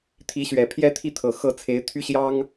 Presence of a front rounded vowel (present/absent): present